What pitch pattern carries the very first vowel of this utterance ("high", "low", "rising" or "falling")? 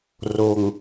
low